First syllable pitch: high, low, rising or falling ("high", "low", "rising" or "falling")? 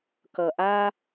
low